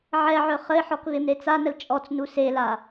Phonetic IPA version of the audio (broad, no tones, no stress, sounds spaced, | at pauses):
ʕ ɛ ʕ œ χ ə ɪ̯ ħ ɔ k v e m ɾ e t͡s a n ə l t͡ʃʼ ɔ t͡s n u s e l a